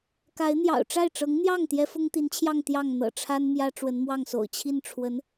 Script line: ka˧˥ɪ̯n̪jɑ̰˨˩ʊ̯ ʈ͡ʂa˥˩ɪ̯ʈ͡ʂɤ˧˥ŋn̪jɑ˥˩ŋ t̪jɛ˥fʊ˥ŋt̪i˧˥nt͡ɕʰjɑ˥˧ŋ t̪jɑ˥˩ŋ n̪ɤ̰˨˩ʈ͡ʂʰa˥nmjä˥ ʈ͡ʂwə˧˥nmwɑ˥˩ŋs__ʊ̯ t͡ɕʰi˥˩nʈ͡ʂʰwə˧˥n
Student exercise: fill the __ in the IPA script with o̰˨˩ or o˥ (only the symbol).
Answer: o̰˨˩